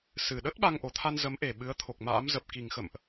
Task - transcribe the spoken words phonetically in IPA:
s ɨ˨˩ ɗ ə˦˥ t̚ ɓ a˧ ŋ ʔ o˨˩ t̪ʰ a˧ n z ə˨˦ m ʔ e˨˩ ɓ ɨ˨˦ ə̯ t̪ʰ o˨˩ k̚ m a̰ː˧˥ m z ə˨˩ p̚ k i˨˩ ŋ x ə̰˧˨ m ʔ

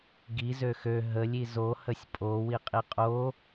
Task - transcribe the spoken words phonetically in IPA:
ɡ i z ø x ø ɦ ə lʲ i z o h ə sʲ pʼ o w i qʼ i qʼ o

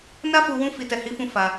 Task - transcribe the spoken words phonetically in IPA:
n a˦ f u˧ w ũ˧ f i˨ t ɛ˨ h i˨˦ f ũ˧ f a˧

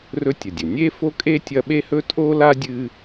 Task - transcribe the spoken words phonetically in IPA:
r ɵ˥ tʲ ɐ˨ dʲ ɵ˩ nʲ e˥ f o˥ kʼ e˥ tʲ ɐ˦ ɓ e˥ h ɵ˥ tʼ o˥ l a˥ dʲ ɨ˦

